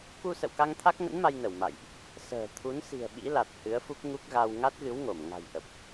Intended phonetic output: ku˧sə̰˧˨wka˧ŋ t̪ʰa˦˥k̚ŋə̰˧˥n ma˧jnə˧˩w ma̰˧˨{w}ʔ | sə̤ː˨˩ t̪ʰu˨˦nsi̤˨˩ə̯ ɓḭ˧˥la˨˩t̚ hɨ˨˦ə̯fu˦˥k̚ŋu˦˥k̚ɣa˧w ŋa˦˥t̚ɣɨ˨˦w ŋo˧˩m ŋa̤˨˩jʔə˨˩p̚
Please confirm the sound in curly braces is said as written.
no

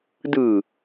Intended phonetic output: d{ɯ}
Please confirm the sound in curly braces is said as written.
yes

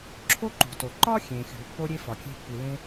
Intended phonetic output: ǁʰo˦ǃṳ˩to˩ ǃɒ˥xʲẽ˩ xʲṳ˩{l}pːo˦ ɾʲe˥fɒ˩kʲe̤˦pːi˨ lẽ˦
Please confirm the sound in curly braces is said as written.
yes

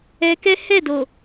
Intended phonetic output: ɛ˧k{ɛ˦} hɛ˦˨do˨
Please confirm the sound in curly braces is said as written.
yes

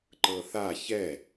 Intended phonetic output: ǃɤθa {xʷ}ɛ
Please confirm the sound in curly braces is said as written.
no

